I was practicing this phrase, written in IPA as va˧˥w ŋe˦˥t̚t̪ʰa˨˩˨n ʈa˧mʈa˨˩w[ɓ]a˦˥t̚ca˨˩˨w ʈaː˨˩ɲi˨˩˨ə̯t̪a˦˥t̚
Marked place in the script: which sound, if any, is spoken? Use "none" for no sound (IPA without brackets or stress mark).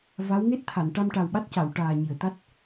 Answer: ɓ